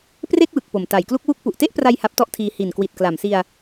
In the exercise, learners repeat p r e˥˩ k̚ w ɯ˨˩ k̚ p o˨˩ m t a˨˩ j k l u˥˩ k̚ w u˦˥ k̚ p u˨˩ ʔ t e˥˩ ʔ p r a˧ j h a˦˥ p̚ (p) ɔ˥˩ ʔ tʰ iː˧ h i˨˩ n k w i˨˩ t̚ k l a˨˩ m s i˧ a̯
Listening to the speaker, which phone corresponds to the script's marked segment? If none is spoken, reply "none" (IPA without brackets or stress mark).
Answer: t